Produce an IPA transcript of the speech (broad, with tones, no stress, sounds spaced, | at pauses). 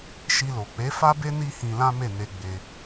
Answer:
ʃ i˧ l o˨ k͡p e˨˦ f a˦ b e˦ n i˦ h ĩ˧ l ã˦ m e˦˨ n e˧ ɡ͡b e˧